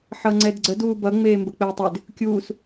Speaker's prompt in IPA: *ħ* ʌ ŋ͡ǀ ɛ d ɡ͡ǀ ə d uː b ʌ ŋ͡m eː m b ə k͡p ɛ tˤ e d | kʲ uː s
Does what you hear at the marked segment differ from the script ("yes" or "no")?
no